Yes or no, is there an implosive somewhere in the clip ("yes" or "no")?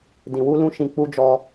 no